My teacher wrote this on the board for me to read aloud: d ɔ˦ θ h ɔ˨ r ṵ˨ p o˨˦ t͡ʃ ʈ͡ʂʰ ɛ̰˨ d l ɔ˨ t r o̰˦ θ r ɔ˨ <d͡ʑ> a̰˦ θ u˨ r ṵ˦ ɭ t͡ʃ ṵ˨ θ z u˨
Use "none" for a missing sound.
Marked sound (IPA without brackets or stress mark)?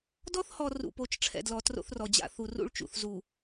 d͡ʑ